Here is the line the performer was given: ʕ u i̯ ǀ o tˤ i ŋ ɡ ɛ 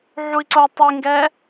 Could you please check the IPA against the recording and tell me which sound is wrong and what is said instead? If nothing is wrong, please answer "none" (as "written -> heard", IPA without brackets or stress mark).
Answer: none